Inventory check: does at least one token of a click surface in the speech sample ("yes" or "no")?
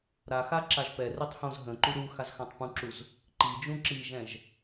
yes